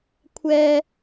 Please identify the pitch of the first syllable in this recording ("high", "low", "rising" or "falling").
high